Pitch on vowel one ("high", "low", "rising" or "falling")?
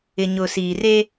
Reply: low